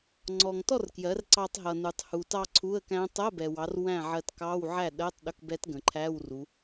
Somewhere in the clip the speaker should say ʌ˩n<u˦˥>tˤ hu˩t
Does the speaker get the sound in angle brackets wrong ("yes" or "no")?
yes